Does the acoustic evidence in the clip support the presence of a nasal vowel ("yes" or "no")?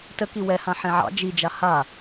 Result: yes